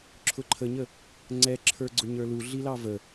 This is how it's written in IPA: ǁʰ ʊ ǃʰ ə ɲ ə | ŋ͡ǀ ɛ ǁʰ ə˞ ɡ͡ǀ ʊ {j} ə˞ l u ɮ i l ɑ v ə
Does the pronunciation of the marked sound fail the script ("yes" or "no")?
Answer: yes